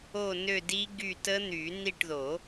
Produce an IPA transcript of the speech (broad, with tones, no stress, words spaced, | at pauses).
o˦˨nø˦˨ di˦˥ɡy˦˨tə˦˥n̪y˨˩˦ ni˦˨ʈðo˨˩˦